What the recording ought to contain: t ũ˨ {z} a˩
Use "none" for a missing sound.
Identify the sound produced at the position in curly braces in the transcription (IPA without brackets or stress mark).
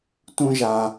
ʒ